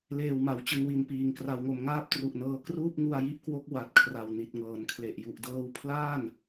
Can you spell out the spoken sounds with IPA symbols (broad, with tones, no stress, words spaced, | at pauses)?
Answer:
leː˨˩wma˩˦wt͡ɕɯ˨˩ŋwi˨˩n piː˨˩ŋkra˧wŋo˧m ŋaː˥˩p̚tru˨˩ʔnɤː˧ kruː˥˩p̚ŋu˧a̯ji˦˥ʔkwo˦˥k̚ wa˨˩t̚ kʰra˨˩wni˨˩t̚ŋɤː˩˦nkʰle˨˩ʔ ju˨˩ʔdɤː˦˥w pʰlaː˥˩n